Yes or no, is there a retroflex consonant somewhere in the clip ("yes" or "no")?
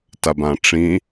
yes